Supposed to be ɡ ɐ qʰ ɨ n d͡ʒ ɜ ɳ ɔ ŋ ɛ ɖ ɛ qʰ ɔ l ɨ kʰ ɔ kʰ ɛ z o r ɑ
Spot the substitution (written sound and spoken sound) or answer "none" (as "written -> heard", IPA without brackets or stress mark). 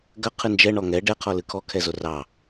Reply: ɜ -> ɛ